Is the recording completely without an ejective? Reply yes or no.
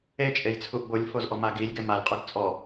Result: no